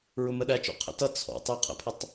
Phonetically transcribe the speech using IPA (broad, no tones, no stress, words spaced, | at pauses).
ɹʊməɗæt͡ʃɔ̰ qʰə̰tʌ t͡sʰɔ̰tˤ ə qʰə̰pʰətˤ